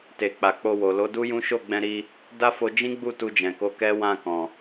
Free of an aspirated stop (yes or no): yes